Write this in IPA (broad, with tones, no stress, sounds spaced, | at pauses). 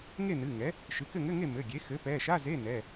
ŋ e˥˨ n ɨ˩˧˩ ŋ ɛ˩˥ | ʃ ɨ˩˧˩ k ɘ˥˨ ŋ ɘ˧˥˧ ŋ e˥˨ m ɘ˩˧˩ ɡʲ e˩˥ x ɘ˩˥ p ɛ˩˧˩ ʃ a˧˥˧ z e˧˥˧ n ɛ˩˧˩